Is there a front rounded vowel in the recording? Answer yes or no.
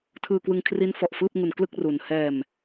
no